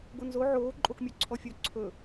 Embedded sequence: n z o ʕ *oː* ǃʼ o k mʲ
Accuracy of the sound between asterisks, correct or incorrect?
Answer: correct